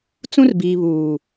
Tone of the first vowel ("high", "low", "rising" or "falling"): high